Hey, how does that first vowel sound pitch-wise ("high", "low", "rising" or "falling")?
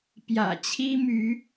low